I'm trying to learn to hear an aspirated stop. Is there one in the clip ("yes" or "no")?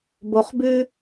no